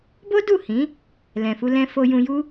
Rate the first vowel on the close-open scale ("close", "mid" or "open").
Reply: mid